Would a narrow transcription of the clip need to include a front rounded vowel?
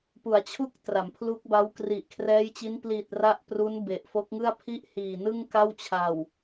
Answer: no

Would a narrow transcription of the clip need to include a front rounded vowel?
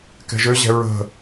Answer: yes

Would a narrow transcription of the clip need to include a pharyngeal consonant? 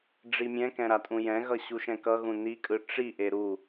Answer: no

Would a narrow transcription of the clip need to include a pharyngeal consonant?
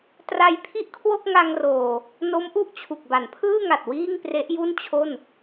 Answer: no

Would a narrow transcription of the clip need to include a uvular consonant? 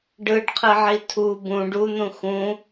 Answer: yes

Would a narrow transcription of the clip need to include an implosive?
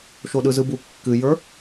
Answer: yes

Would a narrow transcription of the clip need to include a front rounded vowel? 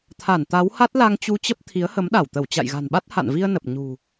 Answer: no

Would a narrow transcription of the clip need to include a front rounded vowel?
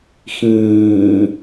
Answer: no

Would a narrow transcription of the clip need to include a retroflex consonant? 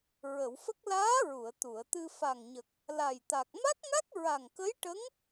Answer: yes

